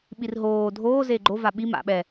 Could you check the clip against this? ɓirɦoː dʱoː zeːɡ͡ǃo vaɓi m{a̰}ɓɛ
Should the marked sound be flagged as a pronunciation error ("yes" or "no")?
no